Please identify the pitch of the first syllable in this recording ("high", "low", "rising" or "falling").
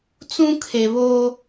high